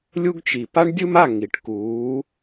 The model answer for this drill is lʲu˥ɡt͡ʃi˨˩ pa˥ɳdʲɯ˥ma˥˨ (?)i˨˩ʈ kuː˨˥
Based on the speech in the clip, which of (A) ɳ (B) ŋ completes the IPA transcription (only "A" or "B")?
B